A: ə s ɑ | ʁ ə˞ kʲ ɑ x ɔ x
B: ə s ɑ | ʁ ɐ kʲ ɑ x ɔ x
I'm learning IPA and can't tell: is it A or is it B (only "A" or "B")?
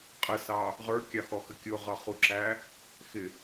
A